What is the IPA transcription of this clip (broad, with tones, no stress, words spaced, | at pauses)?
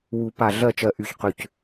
wu˨˩˦pa˨˩ ɮɜ˦˨t͡ʃɜ˨˩ ʔy˨˩çqʏ˨˩c